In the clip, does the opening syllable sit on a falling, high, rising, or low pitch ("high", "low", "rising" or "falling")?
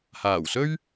low